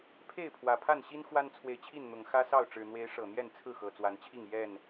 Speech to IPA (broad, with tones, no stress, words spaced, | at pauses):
pʰe˥˨ɪ̯pʰwä˨˩pʰa˥˨nɕi˦n xwa˦nt͡sʰwe˨ɪ̯t͡ɕʰi˥˨nn̪ʊ˨˩ŋ xä˦sɑ˥˨ʊ̯ ʈ͡ʂɻ̩˨˩n̪we˨˦ɪ̯ ʂɤ˨˩n̪jɛ˥˨nt͡sʰɹ̩˥˨ xɤ˨˩t͡swa˨˦nt͡ɕʰi˥˨ŋ jɛ˥˨n